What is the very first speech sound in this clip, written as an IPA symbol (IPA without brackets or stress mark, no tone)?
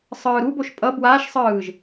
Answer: sˤ